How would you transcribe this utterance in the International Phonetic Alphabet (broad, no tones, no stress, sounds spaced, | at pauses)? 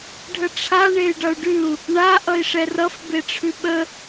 ɖʱ ə ʈ͡ʂʰ a ɳ e y̯ ɖ ʌ u̯ ɖ ʉ u̯ | ɳ a ʔ ʌ i̯ ʂ ɛ r ʌ f b e ʈ͡ʂʰ ʉ ɓ ə